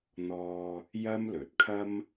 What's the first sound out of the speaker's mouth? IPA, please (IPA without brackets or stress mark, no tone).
n̪